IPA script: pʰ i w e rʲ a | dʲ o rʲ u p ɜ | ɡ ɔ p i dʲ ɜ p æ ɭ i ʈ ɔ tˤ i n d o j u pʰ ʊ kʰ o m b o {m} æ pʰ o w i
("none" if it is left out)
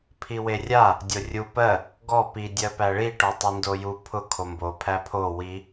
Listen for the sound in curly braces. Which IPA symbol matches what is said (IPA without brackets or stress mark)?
pʰ